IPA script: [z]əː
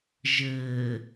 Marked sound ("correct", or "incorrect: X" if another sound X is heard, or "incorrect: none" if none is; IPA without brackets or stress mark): incorrect: ʒ